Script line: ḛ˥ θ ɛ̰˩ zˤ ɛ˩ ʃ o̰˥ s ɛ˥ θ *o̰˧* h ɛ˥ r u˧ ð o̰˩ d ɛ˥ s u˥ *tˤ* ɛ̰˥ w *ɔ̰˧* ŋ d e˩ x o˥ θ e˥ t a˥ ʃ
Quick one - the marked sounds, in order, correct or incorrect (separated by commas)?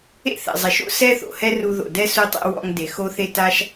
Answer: incorrect, correct, correct